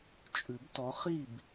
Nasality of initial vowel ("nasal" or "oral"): oral